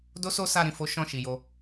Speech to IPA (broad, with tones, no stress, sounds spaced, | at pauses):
d o˦ s o˦ s a˧ ɾ ĩ˨ f o˨˦ ʃ ɔ̃˦˨ ʃ i˨ j o˧